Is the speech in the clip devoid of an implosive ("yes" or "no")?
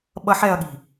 no